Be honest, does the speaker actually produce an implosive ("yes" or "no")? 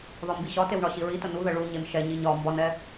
no